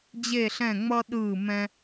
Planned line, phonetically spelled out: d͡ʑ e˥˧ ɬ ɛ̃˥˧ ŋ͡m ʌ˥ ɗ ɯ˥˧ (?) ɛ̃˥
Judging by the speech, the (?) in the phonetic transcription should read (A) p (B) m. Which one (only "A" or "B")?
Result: B